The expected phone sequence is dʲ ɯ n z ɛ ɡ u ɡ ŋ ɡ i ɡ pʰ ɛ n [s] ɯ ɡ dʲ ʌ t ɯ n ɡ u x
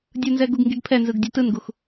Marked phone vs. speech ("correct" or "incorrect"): incorrect